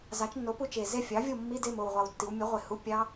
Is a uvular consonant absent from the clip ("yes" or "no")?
no